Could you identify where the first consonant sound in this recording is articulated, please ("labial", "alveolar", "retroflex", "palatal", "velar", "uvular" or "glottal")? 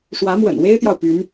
retroflex